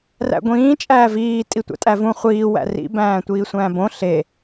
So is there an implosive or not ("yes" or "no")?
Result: no